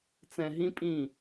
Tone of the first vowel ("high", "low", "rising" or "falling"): low